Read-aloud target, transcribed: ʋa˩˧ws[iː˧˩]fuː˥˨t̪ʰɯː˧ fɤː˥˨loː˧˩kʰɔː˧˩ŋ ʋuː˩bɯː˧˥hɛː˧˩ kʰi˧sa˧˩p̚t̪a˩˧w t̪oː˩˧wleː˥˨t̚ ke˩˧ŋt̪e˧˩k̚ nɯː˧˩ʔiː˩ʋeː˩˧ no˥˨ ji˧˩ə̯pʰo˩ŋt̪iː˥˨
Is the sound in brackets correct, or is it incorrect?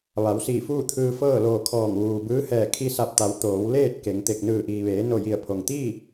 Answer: correct